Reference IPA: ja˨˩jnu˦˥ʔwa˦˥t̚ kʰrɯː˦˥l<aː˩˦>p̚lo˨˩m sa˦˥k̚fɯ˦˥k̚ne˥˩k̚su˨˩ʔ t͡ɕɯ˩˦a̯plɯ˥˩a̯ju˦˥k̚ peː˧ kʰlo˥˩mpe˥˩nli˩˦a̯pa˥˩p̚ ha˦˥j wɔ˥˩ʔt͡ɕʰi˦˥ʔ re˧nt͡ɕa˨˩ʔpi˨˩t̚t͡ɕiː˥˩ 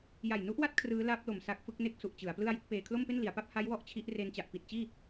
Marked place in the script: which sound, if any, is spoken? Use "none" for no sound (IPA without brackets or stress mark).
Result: aː˦˥